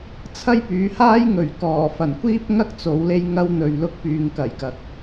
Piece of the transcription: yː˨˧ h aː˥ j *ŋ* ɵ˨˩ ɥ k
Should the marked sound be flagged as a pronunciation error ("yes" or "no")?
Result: no